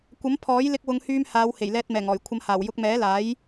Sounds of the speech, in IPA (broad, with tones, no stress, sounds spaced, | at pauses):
kʷ ɐ˨˥ m pʰ ɔː˨˥ j l ɪ˧ k̚ w ʊ˨˧ ŋ h yː˧ m h aː˨˧ w h e˨˩ j l ɛː˧ t̚ m ɛː˨˩ ŋ ɔː˨˩ j kʷʰ ɐ˨˧ m h aː˨˩ w j ʊ˧ k̚ m ɛː˨˥ l aː˨˥ j